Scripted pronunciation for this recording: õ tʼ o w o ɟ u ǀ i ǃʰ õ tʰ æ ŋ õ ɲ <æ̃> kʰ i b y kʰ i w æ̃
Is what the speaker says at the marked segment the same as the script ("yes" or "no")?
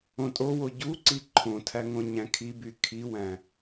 yes